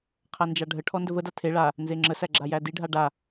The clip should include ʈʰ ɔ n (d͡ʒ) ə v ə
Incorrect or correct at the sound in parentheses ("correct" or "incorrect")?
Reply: incorrect